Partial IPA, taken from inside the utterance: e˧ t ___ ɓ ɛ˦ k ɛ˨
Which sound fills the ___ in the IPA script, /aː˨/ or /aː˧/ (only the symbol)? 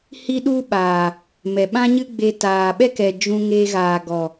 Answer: aː˨